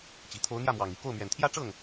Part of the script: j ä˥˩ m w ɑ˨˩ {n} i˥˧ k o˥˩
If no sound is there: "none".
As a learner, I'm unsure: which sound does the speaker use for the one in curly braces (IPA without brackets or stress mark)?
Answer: ŋ